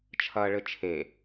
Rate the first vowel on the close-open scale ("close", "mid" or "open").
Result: open